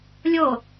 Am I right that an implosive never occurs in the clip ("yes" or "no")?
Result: yes